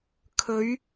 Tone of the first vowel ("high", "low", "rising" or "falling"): rising